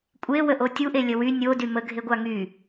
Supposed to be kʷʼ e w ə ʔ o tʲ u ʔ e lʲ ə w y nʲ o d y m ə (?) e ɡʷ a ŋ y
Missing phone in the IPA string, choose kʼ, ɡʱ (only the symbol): ɡʱ